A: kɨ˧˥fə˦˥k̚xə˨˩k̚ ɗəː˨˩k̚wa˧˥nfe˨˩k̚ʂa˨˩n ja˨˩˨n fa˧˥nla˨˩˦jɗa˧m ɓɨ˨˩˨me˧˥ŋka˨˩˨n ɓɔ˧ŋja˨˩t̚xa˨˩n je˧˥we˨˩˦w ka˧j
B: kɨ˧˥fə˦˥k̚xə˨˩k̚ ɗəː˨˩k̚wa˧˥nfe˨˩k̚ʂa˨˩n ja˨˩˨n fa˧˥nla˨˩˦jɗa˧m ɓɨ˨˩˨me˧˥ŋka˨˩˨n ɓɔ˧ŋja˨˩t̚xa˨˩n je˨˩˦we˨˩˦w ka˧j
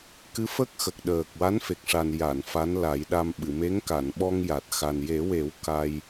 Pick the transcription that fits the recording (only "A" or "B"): B